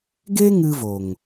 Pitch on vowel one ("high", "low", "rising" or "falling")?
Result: high